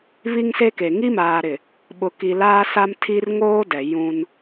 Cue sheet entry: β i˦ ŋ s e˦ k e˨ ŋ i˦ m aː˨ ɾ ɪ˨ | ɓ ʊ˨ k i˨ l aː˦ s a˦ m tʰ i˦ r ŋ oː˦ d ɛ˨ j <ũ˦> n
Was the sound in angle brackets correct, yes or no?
yes